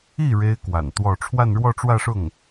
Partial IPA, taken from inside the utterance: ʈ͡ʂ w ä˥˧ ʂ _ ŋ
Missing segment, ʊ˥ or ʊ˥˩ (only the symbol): ʊ˥˩